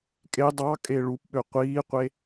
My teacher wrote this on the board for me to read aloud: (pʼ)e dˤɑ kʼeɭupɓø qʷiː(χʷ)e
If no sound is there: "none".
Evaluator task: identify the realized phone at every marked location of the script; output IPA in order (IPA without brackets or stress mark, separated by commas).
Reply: kʼ, qʷ